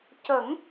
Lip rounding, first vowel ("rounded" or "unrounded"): unrounded